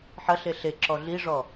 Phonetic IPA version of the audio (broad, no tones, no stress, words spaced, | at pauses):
ħɐɬe ɬeǁɔ ɮiʐɔ